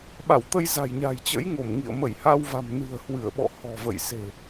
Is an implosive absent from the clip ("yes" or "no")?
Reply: no